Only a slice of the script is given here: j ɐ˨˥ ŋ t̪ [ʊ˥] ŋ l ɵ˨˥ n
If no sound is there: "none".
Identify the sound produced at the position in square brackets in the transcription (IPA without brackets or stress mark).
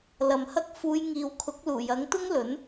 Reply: ʊ˥